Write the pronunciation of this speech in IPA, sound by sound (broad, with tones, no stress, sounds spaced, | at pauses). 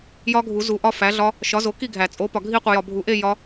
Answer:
j ɒ˦˥ ɡʱ u˨˩˦ z u˨ ʔ ɒ˥˧ f æ˨˥ ɮ ɒ˦˥ | ʃ ɒ˨˥ z o˨˥ k i˥˧ ɡʱ æ˨˩˦ t͡sʼ o˨˥ p ɒ˨ ɡʱ i˥˧ qʷ i˨ j ɒ˨ bʱ u˨˩˦ ʔ e˥˧ j ɒ˦˥